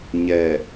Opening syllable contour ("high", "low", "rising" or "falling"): low